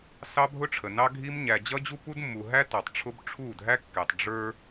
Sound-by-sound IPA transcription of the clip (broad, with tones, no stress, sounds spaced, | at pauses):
s ɑ˦ bʱ ʊ˦ ʈ͡ʂʰ ə˨ n ɑ˦ ɡʱ i˦ m ɲ æ˨ d͡ʑ ʌ˦ d͡ʑ u˦ p u˦ d mː u˨ ɦ æ˦ t ɑ˨ tˤ ʈ͡ʂʰ ʊ˦ b ʈ͡ʂʰ u˦˨ dʱ æ˦ kː ɛ˨ tˤ ɖ͡ʐ ə˞˦